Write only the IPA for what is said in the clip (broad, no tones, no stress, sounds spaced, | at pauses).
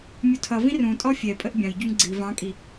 mʲ u tʰ ʌ v ĩ r ũ tʼ ɔ fʲ ɛ pʼ ə ʔ bʲ ɑ̃ j ɟ u ŋ ɡ͡ǀ i v ɑ̃ kʼ i